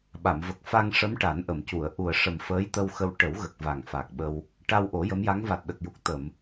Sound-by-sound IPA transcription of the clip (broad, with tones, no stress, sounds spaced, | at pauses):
ɓ a˨˩˨ m v ə˨˩ k̚ f a˧ ŋ ʂ ə˧˥ m ʈ a˨˩˦ n ʔ ə˨˩˨ m c u˨˩˨ ə̯ ʔ u˨˩ ə̯ ʂ ə˨˩ m f əː˧˥ j t̪ ə˧ w x ə˧ w ʈ ə˨˩˦ w ɣ ə˨˩ k̚ v a˨˩ ŋ f a˨˩ k̚ ɓ ə˧ w | ʈ a˧ w ʔ o˨˩˦ j ə˧˥ m j a˧˥ ŋ v a˨˩ t̚ ɗ ə˨˩ k̚ j u˨˩ k̚ t̪ ə˨˩˨ m